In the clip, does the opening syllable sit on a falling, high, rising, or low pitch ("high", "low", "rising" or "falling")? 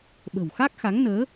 low